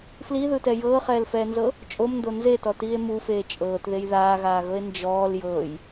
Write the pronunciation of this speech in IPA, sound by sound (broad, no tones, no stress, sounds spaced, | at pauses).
f l i ð ɯ t ɛ j ɤː χ ɛː l f ɛː n z ɤ | t͡ʃʼ o m n d o n z e t ɔ t iː e̯ m u f eː t͡ʃʼ ɤː t ð e j ð aː ɣ aː ɣ ɤ e̯ n d͡ʒ ɔː l j ɤː j